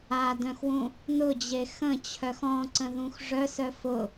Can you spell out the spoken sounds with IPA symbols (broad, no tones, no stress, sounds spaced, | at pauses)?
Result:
a d œ̃ x w ũ | n ʊ d͡ʑ e x ə̃ t͡ɕʰ œ x ɔ̃ ǀ ə̃ ð ũ x ʐ œ s œ f ʊ